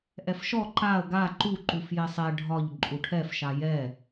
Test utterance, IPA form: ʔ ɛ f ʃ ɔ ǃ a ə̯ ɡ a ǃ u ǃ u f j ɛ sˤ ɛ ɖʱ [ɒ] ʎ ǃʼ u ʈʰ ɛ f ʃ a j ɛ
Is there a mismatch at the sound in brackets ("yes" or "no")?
no